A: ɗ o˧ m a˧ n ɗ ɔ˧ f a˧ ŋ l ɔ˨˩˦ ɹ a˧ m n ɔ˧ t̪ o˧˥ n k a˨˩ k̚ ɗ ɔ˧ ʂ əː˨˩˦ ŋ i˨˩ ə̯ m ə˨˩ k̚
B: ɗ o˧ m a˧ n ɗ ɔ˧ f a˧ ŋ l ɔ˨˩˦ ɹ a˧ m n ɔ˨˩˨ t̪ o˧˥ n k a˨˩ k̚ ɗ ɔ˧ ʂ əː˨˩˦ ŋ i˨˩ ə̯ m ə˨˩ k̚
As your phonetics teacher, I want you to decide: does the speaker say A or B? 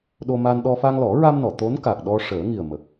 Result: B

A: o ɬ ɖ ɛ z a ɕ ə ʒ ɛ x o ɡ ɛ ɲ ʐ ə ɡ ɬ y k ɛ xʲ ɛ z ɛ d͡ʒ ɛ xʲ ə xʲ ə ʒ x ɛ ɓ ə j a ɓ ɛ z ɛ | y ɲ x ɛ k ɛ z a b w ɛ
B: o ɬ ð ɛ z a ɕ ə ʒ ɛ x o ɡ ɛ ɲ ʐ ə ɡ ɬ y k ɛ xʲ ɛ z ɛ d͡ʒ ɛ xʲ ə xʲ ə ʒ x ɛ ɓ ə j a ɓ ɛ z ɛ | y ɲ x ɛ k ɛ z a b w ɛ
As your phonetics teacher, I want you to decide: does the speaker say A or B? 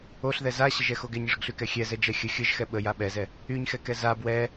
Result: B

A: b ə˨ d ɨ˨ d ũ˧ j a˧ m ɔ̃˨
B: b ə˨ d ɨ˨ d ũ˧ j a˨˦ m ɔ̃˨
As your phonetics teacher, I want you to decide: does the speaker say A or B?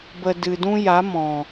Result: B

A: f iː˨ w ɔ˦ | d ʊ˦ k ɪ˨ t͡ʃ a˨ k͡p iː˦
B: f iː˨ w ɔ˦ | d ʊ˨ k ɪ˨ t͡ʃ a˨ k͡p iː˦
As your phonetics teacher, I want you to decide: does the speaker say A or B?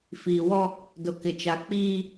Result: B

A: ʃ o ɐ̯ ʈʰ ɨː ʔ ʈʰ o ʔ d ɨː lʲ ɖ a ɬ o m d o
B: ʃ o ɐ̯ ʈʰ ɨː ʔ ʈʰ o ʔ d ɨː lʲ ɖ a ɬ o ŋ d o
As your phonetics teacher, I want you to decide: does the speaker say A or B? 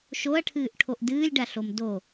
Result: A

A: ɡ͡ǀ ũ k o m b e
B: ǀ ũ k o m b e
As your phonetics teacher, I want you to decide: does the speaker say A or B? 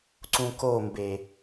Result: B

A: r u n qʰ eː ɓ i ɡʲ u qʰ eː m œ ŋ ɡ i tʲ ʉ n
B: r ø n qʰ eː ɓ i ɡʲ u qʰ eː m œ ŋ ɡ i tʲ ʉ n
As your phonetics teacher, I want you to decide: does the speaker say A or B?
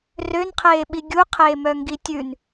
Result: B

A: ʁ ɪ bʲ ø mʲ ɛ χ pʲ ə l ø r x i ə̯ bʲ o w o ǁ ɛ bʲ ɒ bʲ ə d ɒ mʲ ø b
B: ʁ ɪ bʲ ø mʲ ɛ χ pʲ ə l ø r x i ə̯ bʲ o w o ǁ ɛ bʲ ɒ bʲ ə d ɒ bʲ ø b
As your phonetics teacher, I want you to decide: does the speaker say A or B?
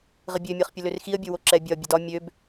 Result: A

